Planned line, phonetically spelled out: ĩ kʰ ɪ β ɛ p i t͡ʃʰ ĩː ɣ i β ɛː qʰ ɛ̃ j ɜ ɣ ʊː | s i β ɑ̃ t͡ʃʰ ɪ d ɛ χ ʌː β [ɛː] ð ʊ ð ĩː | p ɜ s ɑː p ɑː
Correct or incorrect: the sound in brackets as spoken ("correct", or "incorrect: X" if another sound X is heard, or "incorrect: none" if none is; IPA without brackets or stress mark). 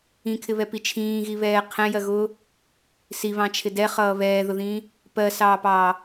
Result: correct